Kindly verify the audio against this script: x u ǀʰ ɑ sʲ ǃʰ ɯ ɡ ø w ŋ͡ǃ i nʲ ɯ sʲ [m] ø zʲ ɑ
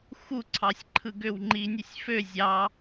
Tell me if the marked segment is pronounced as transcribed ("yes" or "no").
no